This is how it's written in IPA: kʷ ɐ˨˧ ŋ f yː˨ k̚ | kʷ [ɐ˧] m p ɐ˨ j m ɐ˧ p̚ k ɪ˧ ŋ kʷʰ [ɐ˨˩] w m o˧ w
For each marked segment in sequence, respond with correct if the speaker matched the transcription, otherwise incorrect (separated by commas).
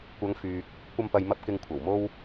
correct, correct